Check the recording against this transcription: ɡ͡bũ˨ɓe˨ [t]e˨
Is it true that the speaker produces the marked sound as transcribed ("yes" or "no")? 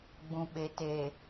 yes